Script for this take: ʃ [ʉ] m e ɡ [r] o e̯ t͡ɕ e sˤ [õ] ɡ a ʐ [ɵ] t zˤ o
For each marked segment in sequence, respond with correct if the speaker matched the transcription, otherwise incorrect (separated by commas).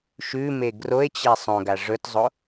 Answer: correct, correct, correct, correct